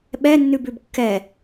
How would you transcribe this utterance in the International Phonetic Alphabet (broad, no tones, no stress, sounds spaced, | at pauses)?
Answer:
ɓ ɛ nː ʉ b ʉ b kː ɛ